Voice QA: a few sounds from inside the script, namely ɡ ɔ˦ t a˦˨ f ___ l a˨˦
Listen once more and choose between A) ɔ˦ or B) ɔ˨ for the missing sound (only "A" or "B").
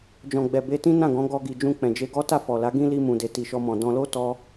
B